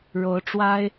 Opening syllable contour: rising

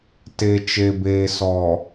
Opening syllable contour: low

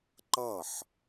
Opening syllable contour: falling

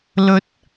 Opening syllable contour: rising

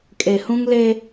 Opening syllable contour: low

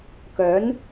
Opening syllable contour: rising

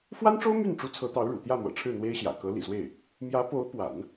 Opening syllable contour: high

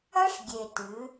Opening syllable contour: high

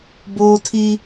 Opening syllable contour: high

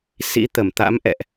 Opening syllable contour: rising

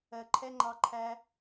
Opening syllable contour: low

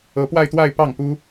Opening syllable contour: rising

